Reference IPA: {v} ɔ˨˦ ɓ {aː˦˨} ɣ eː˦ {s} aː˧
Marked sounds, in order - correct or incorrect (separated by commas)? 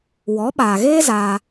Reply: incorrect, incorrect, incorrect